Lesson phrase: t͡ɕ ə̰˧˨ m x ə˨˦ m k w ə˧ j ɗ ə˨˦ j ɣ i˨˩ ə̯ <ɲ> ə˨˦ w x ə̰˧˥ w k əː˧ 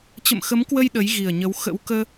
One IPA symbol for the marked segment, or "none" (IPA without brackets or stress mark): ɲ